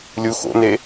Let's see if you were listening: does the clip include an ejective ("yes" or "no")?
no